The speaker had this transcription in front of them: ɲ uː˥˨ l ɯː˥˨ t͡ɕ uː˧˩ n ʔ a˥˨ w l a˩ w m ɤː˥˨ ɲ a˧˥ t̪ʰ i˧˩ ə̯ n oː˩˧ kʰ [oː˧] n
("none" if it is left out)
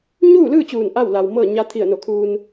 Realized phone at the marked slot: uː˧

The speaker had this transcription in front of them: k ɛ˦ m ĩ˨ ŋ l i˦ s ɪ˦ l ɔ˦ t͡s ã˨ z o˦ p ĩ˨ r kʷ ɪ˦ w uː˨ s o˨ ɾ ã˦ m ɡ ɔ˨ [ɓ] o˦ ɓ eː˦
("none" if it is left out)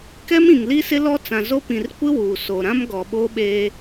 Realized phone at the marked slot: ɓ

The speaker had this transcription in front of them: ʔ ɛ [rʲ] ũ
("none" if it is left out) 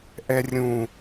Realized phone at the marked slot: rʲ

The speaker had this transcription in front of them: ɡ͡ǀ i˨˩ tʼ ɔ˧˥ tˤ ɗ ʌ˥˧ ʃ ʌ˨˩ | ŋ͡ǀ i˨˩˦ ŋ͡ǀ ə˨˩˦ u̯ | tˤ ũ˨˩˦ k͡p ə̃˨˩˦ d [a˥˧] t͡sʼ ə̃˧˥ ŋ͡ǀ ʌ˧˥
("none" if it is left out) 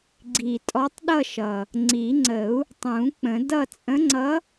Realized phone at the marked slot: ʌ˥˧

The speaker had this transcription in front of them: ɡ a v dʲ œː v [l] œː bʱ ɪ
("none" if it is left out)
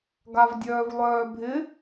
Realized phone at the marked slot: lˠ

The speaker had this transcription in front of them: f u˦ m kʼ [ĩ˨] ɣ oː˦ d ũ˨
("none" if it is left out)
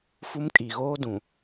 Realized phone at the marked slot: i˨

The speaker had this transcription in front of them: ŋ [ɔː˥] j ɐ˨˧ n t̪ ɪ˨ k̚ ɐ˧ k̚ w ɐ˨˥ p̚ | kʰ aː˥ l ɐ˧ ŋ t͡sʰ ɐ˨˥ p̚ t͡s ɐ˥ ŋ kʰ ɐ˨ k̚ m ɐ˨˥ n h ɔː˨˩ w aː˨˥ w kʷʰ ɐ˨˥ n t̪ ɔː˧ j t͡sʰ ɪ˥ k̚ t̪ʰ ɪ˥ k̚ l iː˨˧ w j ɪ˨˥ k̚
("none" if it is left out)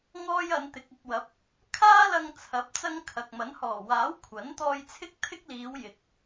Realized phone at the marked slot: ɔː˥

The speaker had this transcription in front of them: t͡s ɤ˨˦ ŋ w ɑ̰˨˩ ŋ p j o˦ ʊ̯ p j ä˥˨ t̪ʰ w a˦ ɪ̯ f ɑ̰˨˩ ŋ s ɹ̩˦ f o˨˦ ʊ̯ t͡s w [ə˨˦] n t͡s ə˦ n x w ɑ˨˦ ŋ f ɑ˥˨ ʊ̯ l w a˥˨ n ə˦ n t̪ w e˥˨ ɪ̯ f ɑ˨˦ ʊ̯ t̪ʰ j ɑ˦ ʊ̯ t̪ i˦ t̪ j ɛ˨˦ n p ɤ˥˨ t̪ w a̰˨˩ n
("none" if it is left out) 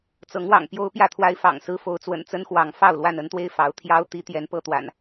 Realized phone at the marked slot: ə̰˨˩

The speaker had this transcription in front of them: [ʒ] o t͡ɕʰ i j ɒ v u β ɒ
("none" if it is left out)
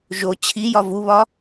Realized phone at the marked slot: ʒ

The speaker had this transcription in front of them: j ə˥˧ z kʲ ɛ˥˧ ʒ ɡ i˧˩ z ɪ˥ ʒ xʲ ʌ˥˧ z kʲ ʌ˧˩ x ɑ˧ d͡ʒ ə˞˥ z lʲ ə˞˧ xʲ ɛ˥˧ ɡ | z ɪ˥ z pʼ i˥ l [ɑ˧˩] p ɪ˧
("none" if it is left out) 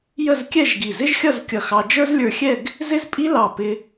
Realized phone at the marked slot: ɑ˧˩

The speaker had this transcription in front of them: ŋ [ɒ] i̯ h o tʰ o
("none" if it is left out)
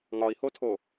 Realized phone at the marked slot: ɒ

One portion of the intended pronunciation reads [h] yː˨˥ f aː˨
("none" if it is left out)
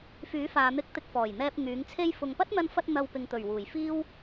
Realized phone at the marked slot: f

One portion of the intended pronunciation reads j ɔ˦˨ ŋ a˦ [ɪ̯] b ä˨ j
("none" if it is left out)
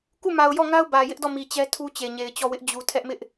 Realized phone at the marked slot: ʊ̯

